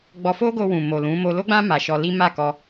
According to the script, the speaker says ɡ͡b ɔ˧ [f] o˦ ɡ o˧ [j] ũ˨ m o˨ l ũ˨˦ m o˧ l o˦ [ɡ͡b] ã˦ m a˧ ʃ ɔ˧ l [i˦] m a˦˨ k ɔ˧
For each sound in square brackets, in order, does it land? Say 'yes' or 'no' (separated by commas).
yes, no, yes, yes